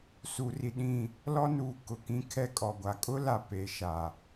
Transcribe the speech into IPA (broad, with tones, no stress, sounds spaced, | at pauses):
s u˨ r i˨ ɗ ĩ˦˨ | l ɔ˦ n uː˨ k ʊ˨ k ĩ˦ kʰ ɛ˦ kʼ ɔ˨ ɡʷ a˨ kʼ ʊ˦ l a˨ p e˨ ʃ a˨